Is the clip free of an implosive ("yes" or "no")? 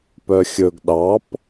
no